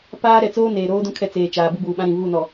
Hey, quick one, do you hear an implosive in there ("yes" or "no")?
yes